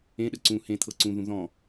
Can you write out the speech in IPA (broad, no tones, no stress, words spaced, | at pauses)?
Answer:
ẽ ɗəǀũ hẽ t̪ʰɤǀũðũ ðɔ̃